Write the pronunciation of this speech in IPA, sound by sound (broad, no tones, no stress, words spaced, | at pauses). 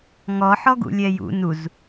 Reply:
ŋɔħɔɡṵlʲɛ jṵ nuz